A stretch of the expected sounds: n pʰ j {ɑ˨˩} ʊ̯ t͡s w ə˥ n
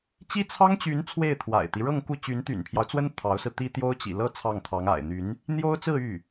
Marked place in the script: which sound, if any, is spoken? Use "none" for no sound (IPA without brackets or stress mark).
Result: ɑ˦